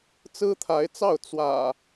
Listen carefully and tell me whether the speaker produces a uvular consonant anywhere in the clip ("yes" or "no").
no